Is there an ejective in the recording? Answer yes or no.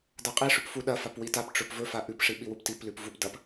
yes